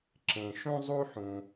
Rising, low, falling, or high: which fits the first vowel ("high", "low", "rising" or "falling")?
low